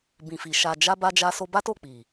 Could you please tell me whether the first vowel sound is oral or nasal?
nasal